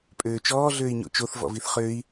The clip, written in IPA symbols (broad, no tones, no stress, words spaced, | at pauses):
pʼøːt͡ʃɔː ɮøːi̯ɲo̰t͡ʃoθ vɔ̰viθχøi̯